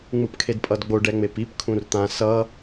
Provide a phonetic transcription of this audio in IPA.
ŋ͡mɯpkʰedpʼʌdɡ͡bo ɖɛŋ͡mepip kʰũrt̪ã sʌ

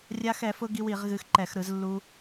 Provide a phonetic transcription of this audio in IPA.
rʲa˧xɛ˧˩˧fʊ˧ ɡi˧w i˧˩˧ʁɣɨ˧xǃɛ˧˩˧x ɾɯ˧˩˧zlːu˧

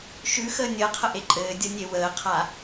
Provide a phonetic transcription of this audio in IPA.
ʃʉxəː nʲəːqʰəʔe ǃʼɘːdʲʌnʲe wəːqʰa

